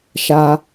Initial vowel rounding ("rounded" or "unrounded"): unrounded